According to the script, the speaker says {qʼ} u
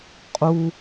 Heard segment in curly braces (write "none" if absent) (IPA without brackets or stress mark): qʼ